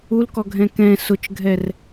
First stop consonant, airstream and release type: plain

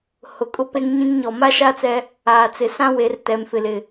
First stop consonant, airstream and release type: ejective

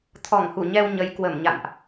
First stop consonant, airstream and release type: aspirated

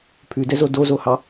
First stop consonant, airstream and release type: aspirated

